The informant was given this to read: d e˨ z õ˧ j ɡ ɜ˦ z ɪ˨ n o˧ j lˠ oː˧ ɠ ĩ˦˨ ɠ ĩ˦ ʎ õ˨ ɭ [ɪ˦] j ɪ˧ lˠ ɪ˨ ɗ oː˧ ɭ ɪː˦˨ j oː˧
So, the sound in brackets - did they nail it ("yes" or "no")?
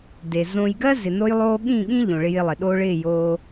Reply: no